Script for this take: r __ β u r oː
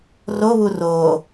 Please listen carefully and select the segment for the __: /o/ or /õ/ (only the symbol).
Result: o